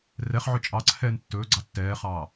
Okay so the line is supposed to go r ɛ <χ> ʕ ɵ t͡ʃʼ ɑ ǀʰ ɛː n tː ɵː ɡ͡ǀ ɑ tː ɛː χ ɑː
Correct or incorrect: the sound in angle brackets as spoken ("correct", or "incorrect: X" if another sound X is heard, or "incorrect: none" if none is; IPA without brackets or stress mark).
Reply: correct